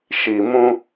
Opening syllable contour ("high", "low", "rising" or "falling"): low